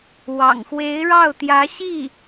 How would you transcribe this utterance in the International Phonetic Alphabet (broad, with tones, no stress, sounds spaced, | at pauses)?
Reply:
w ɑ̰˨˩ ŋ x w e˧˥ ɪ̯ ɻ ɑ˥˩ ʊ̯ t̪ j ä˧˥ ɕ i˥˩